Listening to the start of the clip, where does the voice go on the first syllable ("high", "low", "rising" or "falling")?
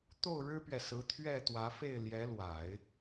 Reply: falling